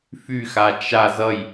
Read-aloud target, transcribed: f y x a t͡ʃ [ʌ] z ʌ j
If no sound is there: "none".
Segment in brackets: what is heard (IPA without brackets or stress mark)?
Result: a